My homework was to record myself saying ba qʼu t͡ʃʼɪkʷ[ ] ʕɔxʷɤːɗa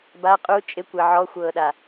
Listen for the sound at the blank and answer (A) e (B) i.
A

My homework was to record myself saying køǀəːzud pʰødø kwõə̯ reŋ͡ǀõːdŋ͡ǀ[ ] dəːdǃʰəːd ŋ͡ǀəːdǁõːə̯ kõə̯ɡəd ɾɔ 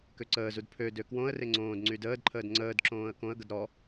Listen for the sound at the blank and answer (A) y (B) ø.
A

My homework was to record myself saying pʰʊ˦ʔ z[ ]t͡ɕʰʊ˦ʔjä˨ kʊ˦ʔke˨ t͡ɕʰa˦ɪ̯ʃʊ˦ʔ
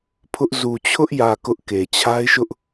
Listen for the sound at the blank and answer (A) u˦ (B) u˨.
B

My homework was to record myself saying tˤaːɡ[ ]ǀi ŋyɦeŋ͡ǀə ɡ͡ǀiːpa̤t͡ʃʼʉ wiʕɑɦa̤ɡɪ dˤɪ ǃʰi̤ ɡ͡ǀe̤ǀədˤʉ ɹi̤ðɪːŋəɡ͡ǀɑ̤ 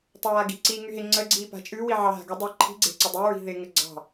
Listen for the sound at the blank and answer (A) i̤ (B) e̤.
A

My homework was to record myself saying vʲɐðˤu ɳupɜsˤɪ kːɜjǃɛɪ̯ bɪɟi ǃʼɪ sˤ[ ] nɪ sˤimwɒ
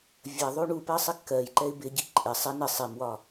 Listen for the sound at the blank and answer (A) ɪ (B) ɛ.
A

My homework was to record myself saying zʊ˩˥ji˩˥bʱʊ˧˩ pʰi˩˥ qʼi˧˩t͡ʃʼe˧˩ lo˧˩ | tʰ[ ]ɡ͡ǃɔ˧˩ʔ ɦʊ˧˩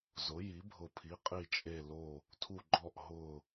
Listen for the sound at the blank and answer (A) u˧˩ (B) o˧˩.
A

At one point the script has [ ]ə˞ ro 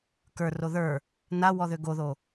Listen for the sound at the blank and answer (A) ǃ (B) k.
B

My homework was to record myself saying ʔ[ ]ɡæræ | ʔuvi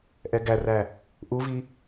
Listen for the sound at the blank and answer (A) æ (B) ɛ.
B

